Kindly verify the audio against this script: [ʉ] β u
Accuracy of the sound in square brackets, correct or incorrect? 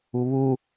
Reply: incorrect